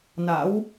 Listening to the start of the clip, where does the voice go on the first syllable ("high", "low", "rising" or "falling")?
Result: rising